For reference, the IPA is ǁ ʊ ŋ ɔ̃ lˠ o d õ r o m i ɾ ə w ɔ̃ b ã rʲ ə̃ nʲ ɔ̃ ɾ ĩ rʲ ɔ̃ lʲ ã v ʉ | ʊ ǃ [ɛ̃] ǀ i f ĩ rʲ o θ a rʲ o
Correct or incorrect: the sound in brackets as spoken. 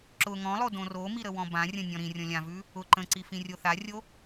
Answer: incorrect: ə̃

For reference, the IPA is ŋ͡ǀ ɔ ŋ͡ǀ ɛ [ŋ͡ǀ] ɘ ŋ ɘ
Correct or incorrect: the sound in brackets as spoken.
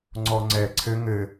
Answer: incorrect: ǀʰ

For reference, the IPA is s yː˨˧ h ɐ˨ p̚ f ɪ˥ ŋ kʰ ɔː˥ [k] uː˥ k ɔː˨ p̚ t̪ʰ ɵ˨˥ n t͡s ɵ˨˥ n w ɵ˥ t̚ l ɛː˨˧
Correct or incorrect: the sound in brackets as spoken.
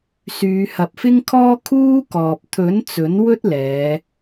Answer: incorrect: kʰ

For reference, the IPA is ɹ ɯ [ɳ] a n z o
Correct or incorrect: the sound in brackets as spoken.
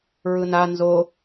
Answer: incorrect: n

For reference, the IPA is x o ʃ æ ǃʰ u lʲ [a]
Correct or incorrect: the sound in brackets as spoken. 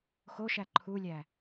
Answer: incorrect: æ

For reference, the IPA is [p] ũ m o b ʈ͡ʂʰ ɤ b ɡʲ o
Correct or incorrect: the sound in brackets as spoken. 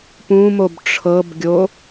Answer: correct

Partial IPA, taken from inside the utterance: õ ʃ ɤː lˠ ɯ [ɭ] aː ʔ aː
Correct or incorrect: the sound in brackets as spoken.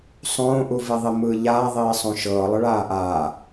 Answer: correct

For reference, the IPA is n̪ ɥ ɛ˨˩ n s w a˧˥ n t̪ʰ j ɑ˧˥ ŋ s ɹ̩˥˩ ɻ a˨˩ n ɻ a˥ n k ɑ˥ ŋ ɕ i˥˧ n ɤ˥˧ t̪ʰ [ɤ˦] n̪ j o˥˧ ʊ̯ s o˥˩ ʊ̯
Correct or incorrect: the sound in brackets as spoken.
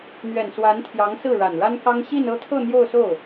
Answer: incorrect: ɤ˥˧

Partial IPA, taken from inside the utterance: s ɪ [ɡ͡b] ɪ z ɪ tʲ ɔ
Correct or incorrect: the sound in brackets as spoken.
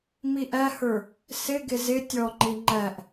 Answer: incorrect: ɡ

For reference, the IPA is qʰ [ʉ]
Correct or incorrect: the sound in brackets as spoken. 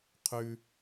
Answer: correct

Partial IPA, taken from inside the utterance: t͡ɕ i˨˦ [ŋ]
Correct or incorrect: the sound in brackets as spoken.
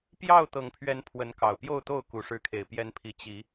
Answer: incorrect: none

